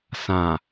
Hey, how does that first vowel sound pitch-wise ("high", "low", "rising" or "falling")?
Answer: low